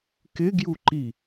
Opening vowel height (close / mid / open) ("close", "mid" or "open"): close